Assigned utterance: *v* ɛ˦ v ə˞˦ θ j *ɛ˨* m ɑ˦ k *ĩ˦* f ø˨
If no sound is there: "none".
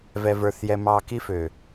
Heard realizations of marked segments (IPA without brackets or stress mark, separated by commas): v, ɛ˦, i˦